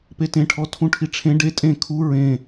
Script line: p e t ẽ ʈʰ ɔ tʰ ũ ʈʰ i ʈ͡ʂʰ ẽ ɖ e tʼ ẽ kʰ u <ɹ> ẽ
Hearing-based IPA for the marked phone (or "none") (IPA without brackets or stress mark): ɹ